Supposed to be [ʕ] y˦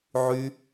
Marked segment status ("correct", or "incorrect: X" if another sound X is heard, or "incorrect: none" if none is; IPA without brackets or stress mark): correct